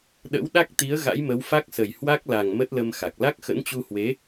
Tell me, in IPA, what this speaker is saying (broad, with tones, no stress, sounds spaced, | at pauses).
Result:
ɗ ə̰˧˥ w ɗ a˦˥ k̚ t̪ i˨˦ ə̯ ɣ a̰˧˥ j m ə˨˦ w f a˦˥ k̚ s ə˨˩ j h w a˦˥ k̚ l a˨˩ ŋ m ə˦˥ t̚ l ə˧ m x a˨˩ k̚ l a˦˥ k̚ x ə̰˧˥ n t͡ɕ u˧ h w e˨˦